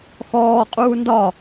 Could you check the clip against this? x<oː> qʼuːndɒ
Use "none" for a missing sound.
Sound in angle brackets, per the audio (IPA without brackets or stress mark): ɔː